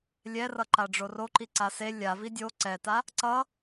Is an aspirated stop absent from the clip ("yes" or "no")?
yes